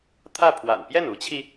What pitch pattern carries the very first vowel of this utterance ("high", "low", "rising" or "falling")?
falling